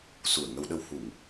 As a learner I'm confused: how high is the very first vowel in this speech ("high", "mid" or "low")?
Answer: high